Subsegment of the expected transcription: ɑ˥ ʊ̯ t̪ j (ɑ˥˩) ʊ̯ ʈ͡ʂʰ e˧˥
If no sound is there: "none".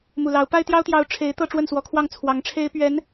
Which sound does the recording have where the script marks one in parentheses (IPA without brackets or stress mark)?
ɑ˧˥